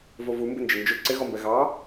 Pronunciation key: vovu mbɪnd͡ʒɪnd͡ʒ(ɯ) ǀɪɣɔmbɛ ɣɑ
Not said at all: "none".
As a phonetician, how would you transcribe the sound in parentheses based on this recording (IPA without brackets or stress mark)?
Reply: ʊ